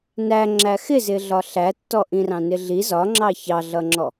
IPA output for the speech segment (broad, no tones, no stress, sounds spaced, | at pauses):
n æ ŋ͡ǁ æ x ɪ z ɪ ɮ ɒ ɬ æ tː ɔ ʔ ĩ r ɑ̃ n ɪ ɮ i z ɒ ŋ͡ǁ ɑ ç ɑ ɮ ʌ ŋ͡ǁ ɔ